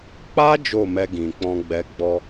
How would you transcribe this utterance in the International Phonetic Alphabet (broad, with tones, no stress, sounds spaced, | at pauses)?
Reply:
k͡p a˦ d͡ʒ o˦˨ m ɛ˧ ɡ ĩ˨ k͡p ɔ̃˧ ɡ͡b ɛ˧ ɡ͡b ɔ˦